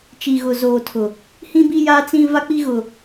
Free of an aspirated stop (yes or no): no